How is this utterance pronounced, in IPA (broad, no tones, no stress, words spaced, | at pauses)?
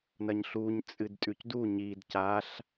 nɐɲɬuɲ t͡sʼɨdtʼʉcdu ɲid caɬ